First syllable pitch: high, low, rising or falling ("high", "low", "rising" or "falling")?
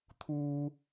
low